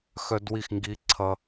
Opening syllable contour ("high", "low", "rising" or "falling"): high